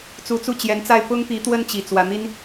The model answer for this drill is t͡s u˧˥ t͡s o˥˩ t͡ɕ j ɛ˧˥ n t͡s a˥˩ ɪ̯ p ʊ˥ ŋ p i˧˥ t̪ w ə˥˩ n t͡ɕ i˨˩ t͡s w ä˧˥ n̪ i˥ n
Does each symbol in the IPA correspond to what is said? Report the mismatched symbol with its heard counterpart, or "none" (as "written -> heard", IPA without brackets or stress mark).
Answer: o˥˩ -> u˥˩